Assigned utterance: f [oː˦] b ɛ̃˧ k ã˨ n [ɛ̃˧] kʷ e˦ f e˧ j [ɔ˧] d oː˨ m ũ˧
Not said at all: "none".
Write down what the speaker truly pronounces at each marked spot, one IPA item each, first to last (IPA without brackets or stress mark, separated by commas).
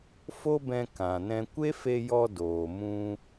o˦, ɛ̃˧, ɔ˧